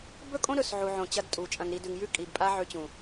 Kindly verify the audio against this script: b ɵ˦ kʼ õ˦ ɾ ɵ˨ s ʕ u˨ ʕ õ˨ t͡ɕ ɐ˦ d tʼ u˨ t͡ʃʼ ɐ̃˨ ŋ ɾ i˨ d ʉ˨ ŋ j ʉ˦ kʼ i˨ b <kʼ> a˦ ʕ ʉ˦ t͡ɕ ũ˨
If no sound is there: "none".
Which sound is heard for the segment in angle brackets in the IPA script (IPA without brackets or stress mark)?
pʼ